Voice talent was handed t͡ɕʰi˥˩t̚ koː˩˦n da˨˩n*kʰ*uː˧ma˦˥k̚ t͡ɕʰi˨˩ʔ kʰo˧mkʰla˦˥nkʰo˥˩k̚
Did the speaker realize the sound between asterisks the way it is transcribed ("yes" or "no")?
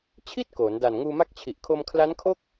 no